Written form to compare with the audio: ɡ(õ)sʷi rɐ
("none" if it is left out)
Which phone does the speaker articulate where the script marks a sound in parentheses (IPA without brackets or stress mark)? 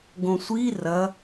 õ